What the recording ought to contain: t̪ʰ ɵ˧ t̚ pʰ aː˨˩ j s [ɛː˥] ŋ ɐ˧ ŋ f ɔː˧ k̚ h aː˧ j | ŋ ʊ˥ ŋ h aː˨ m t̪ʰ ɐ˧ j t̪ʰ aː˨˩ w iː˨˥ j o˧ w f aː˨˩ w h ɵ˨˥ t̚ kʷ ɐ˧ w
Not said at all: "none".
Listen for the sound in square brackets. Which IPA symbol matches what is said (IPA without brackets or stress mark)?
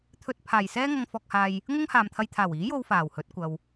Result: ɛː˥